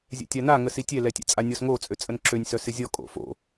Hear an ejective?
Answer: yes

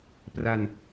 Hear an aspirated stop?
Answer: no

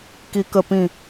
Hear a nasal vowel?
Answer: yes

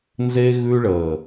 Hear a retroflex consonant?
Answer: yes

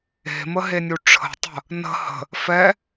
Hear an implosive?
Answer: no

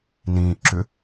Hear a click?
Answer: yes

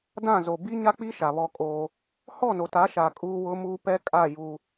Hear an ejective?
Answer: yes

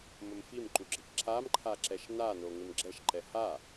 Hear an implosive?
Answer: no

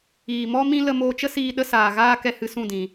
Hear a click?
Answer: no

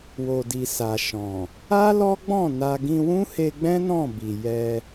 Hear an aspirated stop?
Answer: no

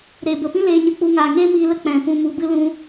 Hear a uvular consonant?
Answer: no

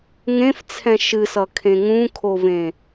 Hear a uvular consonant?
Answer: no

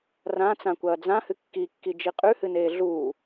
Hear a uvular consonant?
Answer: yes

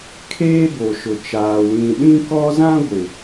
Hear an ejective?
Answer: no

